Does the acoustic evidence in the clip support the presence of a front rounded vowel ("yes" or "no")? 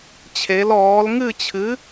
no